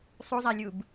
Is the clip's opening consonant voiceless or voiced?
voiceless